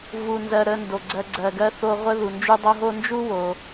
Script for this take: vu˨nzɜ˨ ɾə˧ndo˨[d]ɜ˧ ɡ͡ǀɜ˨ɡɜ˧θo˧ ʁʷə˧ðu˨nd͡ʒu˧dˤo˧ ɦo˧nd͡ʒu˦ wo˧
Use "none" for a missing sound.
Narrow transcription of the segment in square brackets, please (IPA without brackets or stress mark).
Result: ɡ͡ǀ